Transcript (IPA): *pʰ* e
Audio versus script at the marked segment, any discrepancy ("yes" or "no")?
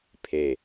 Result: no